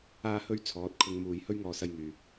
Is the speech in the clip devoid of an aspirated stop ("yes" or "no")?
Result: no